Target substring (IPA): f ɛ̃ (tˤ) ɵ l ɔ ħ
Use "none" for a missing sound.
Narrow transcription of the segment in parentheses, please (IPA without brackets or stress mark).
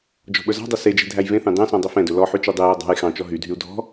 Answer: d